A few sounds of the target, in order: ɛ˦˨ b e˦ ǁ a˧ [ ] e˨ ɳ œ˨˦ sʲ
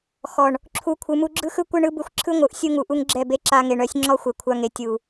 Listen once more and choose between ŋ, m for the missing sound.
ŋ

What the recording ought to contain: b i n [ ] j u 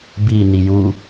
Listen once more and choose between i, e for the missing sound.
i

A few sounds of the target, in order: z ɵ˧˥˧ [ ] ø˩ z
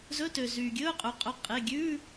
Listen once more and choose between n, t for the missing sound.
t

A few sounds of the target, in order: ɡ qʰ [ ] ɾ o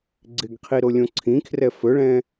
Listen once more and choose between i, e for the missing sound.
i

